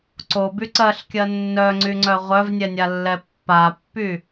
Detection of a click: present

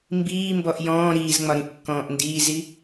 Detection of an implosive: absent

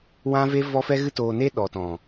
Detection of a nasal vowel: present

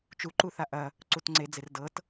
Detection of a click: present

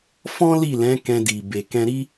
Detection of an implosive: absent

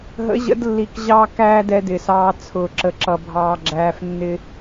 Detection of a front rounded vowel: absent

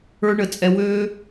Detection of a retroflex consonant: present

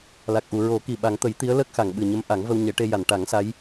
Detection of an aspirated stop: absent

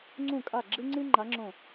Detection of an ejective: present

